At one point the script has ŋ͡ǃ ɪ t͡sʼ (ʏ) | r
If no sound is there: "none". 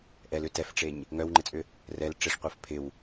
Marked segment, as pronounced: ʏ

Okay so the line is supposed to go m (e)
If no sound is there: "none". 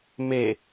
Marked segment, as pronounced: e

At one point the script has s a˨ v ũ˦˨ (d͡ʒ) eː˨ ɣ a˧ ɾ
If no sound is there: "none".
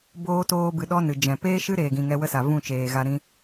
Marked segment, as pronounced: t͡ʃ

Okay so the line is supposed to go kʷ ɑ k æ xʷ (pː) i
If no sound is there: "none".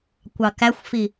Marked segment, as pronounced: f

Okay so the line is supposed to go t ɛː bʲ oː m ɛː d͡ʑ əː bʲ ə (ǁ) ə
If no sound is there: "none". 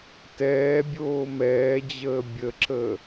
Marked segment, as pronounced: ǁ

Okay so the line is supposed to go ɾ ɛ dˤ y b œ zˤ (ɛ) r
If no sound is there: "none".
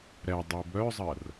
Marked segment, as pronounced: ɜ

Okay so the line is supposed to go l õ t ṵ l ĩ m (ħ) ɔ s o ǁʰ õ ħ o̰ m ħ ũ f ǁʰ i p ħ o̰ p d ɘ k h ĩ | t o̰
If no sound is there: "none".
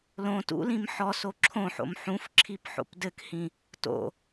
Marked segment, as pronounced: ħ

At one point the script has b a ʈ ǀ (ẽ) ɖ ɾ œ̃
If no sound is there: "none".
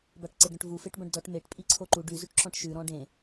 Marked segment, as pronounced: e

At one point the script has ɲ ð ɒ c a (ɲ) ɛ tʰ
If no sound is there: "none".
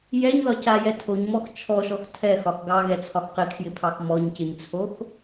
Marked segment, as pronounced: j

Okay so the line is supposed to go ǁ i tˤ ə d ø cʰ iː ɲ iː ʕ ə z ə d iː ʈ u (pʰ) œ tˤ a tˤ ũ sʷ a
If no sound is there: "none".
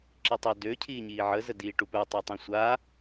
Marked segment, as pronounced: p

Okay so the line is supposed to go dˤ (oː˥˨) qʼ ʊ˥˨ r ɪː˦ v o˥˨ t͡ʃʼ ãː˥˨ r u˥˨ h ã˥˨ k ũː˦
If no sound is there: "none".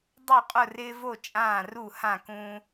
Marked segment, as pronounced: o˥˨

